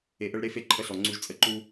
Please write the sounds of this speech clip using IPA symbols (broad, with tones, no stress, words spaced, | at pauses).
e˨ʔə˦ɭɾe˦fe˦ ǃʰə˦ɬɔ˨ŋ͡ǀu˦ʒt͡sʼə˦ ǃu˦